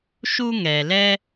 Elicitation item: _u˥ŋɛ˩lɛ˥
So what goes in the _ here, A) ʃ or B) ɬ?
A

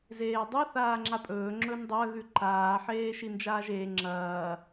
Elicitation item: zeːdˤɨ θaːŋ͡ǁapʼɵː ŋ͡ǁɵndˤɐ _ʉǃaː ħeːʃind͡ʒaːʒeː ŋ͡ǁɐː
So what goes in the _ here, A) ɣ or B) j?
A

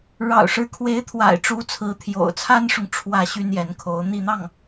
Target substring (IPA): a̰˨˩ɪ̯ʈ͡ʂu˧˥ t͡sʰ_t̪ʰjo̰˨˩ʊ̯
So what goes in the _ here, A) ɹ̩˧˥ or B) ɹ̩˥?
A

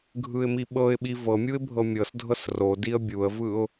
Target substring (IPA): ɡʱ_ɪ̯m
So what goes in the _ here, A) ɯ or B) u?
A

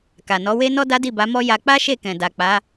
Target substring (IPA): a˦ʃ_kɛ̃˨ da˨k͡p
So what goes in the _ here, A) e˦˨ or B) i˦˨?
A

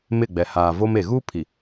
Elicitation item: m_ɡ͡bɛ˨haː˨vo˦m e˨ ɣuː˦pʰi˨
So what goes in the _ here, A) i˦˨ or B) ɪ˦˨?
B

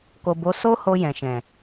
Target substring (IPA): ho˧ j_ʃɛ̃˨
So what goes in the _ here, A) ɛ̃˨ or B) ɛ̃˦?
A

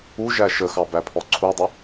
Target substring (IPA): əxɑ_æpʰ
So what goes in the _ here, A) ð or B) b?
B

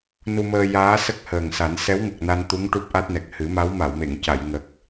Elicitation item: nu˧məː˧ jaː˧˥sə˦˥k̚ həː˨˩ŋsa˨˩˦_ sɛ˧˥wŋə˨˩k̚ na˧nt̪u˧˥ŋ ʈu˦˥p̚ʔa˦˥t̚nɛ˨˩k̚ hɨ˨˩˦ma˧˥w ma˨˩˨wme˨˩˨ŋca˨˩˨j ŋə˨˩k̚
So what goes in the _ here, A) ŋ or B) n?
B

